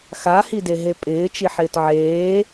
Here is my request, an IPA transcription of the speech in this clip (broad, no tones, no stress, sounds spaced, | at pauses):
x a h i d e ɦ e pʼ ɪː t͡ʃ i ħ ɪː t ʕ eː